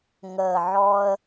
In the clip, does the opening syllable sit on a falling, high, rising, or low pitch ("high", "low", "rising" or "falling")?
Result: low